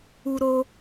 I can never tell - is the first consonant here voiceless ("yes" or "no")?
no